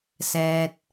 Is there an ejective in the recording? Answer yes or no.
no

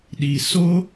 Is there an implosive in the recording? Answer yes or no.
yes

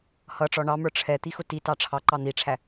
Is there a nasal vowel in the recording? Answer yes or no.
no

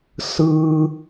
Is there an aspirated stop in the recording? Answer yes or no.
no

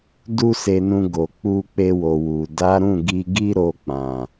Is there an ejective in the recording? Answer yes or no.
no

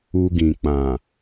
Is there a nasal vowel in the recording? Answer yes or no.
yes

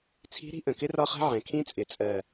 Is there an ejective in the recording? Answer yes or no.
yes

